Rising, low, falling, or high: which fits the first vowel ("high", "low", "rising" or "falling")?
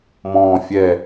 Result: low